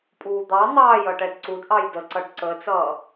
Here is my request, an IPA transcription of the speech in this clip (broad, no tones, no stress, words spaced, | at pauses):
pʼuːd̪ɑ n̪ɑːj ʌʈɛdǀud ʔɑjdəǀʌɖ ǀəːt͡sʌː